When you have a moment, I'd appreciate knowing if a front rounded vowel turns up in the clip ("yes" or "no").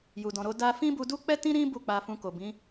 no